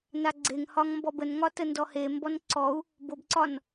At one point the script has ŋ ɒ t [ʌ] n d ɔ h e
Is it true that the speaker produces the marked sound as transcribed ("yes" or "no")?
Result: no